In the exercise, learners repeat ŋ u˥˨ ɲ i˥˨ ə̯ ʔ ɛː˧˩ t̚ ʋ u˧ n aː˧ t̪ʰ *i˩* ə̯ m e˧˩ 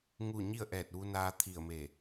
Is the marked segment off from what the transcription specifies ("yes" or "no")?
yes